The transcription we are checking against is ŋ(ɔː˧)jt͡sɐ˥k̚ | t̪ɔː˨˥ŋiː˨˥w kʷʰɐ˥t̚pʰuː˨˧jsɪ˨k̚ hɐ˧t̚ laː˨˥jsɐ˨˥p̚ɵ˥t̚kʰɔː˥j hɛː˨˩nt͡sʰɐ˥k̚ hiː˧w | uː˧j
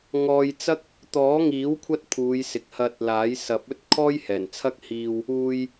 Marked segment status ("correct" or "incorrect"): correct